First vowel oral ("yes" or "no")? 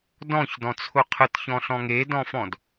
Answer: no